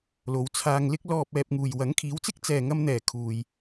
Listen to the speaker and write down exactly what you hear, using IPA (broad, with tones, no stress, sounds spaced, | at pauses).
l o˨˧ w t͡sʰ aː˧ ŋ l ɪ˥ k̚ l ɔː˧ p̚ ɛː˧ p̚ ŋ uː˨ j w ɐ˨˥ ŋ kʰ iː˨˥ w t͡s ɪ˥ k̚ t͡s ɛː˨ ŋ ɐ˧ m n̪ ɛː˨˩ kʰ uː˨ j